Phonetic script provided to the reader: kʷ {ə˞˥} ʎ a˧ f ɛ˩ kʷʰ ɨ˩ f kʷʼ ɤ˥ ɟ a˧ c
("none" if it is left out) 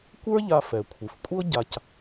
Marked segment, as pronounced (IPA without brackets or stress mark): ə˞˥